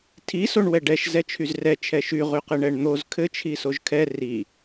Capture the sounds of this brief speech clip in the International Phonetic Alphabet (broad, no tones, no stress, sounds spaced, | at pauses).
tʰ i s o ɳ w ɛ ɖ ɛ ʃ z ɛ t͡ʃʰ y z r ɛ t͡ʃʰ ɛ ʃ y ʁ y q ɘ ɳ ɛ ɳ n̪ o z kʰ ɘ t͡ʃʰ i s o ʒ kʰ ɛ r i